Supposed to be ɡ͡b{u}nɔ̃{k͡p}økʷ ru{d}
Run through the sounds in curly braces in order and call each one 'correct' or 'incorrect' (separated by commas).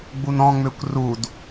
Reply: correct, incorrect, correct